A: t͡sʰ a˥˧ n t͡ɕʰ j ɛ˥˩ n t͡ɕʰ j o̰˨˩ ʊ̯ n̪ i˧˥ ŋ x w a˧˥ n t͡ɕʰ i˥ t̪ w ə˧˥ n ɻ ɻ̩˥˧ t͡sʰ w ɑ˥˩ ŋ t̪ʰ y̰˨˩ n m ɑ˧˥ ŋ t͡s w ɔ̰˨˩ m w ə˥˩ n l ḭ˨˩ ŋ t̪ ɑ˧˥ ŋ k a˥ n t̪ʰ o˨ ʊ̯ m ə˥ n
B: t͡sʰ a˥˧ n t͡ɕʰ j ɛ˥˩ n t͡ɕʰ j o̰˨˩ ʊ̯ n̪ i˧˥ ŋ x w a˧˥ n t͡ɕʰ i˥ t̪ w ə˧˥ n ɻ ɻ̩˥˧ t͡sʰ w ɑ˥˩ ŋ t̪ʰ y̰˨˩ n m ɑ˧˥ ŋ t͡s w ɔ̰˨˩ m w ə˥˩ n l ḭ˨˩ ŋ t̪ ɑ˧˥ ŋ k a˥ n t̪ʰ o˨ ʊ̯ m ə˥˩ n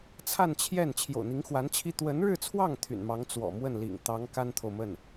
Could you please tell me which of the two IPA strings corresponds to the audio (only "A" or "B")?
B